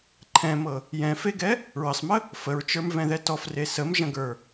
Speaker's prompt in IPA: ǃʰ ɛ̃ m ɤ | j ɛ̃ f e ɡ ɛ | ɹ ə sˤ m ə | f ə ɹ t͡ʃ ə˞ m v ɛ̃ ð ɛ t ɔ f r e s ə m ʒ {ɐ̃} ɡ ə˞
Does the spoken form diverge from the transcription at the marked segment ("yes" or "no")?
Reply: no